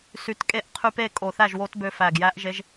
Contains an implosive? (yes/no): no